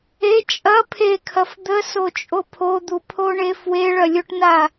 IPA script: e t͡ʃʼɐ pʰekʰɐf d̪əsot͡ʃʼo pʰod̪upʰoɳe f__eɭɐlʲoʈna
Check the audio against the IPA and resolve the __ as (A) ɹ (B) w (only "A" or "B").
B